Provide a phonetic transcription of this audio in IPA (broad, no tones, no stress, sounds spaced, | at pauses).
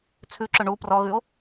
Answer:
t͡sʰ ʉ ǁ ʊ ɳ u p r ɔ ɣ ʉ o̯